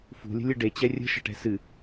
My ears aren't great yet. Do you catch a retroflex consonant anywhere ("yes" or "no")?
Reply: yes